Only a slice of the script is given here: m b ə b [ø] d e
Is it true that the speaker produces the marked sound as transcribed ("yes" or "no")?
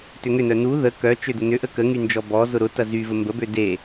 yes